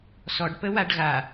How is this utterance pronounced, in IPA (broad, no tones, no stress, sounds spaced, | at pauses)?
s ɔ ɖ p ə w a ɖ ɣ a